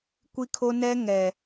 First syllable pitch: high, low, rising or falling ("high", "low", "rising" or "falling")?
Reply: high